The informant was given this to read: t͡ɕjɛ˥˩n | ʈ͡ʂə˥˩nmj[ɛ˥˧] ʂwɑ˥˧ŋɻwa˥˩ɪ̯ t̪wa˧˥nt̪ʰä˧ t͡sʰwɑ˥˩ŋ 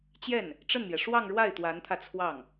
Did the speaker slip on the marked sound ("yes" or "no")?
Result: yes